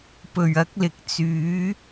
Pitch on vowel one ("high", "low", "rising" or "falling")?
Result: low